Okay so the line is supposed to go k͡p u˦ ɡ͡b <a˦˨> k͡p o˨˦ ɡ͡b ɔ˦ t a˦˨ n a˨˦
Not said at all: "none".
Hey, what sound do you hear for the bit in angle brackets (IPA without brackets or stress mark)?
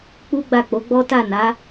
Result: a˦˨